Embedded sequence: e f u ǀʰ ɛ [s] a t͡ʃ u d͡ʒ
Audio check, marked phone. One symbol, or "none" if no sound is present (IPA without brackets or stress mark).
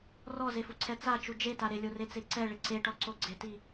t͡s